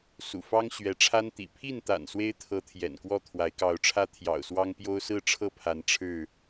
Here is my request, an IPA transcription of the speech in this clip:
s ṵ˨˩ f ɑ˦ ŋ ɕ ɥ ɛ˨˦ ʈ͡ʂʰ a˦ n t̪ ḭ˨˩ pʰ i˥˨ n t̪ a̰˨˩ n s w e˦ ɪ̯ t̪ʰ ɤ˨˦ t̪ʰ j ɛ̰˨˩ n k w ɔ˥˨ t̪ʰ w a˨˦ ɪ̯ k ɑ˨˦ ʊ̯ ʈ͡ʂʰ ä˦ t̪ʰ j ɑ̰˨˩ ʊ̯ s w ɑ˦ ŋ p j o˦ ʊ̯ s ɹ̩˥˨ ʈ͡ʂʰ ɤ˥˨ pʰ a˨˦ n ʈ͡ʂʰ ɻ̩˥˨

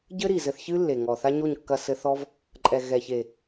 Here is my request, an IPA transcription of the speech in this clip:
ɟ ɘ˦ ɾ i˨ z ɘ˧ θ ç ɨ˦ lː e˨ ŋ ɔ˨ θ a˦ ɲ o˦˨ ɲ kː ɐ˧ s ɘ˧ θ ɔ˦ v | ǃʼ ɛ˨ ɣ ɛ˨ ç e˨

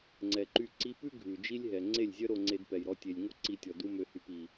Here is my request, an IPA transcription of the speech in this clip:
ŋ͡ǀ ɛ˨ ǃ y˧ ǀ i˧ p ʉ˦ ɡʱ ʉ˨ d͡ʒ i˦ lʲ ɦ ɛ˨ ŋ͡ǀ e˦˨ lʲ zʲ œ˦ ɾ o˧ ŋ͡ǀ e˧ d p ɛ˨ j ɾ ɔ˧ tʲ e˨ lʲ ŋ o˦ ǀ i˧ tʲ ɔ˨ d u˦ m ø˧ h y˧ p i˨

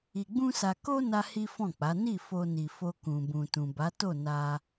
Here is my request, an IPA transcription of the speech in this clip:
i˧ ɡ͡b ũ˦ s a˧ k o˦ n a˦ h i˦ f ɔ̃˦˨ k͡p a˨˦ n i˦˨ f o˧ n i˨ f o˧ k ũ˨ b ũ˨ t ũ˨ b a˨˦ t o˦˨ n a˧

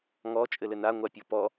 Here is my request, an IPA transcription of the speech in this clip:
ŋ ɔ t͡ʃʼ ɘ l ɘ n a ŋʷ a pʲ o p ɔ

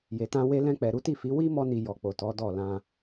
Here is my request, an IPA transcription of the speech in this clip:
j e˨ t ã˧ w e˧ l ɛ̃˧ k͡p ɛ˨ ɾ u˨˦ t i˦˨ f i˨˦ w i˦ m ɔ˧ n i˨ j ɔ˨ k͡p o˨ t ɔ˨˦ d ɔ˦˨ l ã˧

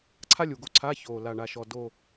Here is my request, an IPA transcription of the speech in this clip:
ǀʰ a˥ lʲ u˨˩ ɡ o˦˨ ǀʰ a˧˥˧ ç o˨˩ l a˨˩ ɳ a˨˩ ʃ ɔ˨˩ d o˦˨

